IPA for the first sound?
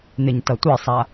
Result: n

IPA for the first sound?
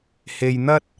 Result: h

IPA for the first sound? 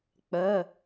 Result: k͡p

